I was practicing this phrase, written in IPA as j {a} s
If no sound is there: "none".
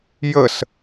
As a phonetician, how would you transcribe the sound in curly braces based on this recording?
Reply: ə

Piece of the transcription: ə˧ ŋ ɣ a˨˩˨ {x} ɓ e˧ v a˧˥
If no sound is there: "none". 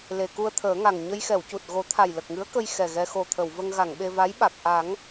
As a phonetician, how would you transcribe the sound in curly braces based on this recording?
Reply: ŋ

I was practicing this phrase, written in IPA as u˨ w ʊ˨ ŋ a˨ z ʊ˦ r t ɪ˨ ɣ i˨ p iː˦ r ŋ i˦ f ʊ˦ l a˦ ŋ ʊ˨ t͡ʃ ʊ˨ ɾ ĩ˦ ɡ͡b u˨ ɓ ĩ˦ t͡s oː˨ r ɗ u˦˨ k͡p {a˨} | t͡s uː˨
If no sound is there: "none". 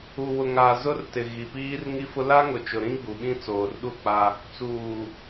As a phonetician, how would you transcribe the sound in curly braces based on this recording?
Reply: a˦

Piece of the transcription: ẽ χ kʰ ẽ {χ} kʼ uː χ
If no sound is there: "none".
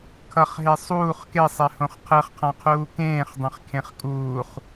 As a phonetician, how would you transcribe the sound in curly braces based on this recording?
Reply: χ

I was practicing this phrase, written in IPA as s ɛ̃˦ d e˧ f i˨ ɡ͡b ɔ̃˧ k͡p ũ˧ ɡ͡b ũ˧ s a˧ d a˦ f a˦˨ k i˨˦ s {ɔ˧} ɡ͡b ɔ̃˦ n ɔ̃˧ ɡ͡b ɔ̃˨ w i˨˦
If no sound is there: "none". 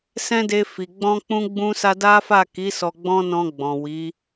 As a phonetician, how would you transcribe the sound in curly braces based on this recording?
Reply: ɔ˧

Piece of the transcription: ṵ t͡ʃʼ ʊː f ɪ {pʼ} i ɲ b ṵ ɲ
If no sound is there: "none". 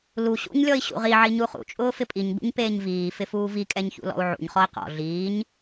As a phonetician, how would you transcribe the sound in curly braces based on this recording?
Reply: pʼ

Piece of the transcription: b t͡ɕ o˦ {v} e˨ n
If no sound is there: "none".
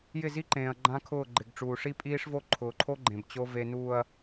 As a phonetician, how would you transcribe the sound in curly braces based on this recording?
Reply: v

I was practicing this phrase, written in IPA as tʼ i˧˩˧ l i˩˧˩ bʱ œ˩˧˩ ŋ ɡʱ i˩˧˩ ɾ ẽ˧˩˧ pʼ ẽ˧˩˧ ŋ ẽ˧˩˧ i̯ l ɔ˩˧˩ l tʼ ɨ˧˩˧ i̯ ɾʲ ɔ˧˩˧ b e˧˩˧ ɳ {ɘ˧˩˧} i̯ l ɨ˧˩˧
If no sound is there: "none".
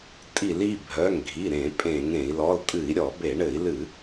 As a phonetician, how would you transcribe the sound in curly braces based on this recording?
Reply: ɘ˧˩˧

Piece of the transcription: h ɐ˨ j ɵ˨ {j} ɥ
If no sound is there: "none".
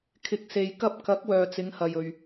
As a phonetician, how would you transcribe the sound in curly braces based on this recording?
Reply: none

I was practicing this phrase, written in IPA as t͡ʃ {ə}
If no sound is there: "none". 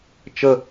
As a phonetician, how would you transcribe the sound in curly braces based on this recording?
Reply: ə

